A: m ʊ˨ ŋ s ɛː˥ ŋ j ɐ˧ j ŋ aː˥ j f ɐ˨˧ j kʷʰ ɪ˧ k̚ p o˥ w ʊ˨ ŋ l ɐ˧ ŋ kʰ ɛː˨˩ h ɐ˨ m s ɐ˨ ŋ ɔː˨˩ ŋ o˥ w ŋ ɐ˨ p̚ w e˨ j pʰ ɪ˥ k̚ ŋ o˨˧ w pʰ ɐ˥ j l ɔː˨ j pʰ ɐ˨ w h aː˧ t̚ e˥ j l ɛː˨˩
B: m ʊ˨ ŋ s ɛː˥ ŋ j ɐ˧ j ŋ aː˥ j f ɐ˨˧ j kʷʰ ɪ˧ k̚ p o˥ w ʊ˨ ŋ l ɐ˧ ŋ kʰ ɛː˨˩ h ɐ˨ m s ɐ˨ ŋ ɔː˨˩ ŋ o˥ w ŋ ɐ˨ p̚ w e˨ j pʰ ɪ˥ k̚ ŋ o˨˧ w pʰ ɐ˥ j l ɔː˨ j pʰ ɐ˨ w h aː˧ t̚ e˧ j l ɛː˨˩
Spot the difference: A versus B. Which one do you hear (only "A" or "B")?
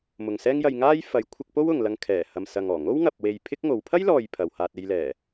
B